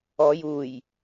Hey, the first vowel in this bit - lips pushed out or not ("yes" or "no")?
yes